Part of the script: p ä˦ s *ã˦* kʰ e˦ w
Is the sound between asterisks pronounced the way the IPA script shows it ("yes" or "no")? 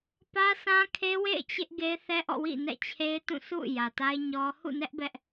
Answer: yes